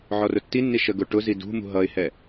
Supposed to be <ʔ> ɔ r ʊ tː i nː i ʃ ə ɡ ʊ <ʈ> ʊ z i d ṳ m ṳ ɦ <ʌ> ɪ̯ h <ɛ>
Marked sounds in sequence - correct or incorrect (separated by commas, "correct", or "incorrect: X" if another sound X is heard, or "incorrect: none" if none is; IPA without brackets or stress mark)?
incorrect: ʕ, correct, correct, correct